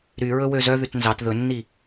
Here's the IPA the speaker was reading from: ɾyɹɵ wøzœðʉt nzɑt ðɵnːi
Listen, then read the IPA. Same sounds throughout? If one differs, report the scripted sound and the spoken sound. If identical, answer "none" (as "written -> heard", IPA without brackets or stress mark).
none